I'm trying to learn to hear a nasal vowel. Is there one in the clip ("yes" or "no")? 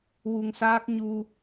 no